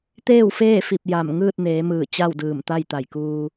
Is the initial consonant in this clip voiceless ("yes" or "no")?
yes